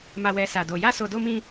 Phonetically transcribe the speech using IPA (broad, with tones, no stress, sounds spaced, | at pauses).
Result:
m a˧ w ɛ˧ s a˧ d o˧ j a˦ s o˧ d o˦ m ĩ˦